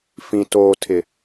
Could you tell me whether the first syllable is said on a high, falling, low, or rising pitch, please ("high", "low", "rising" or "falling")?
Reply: low